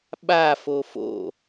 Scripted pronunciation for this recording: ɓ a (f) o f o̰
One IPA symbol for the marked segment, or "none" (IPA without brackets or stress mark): f